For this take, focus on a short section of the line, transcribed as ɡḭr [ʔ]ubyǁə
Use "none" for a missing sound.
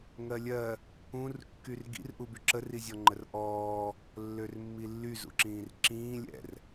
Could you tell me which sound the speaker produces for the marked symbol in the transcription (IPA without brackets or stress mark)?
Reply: ʔ